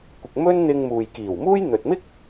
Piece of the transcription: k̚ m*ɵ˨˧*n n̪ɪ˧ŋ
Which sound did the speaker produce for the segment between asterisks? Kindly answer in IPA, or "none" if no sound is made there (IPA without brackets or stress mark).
ɵ˥